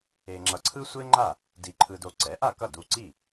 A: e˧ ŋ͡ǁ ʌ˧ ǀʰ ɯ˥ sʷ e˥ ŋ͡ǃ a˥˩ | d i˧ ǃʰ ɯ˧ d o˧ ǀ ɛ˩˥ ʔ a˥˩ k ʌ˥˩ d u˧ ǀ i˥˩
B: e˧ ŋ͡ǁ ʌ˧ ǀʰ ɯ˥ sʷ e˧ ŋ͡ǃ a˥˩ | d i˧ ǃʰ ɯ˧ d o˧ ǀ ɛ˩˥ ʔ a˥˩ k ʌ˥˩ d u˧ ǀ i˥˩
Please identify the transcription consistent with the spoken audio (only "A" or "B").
A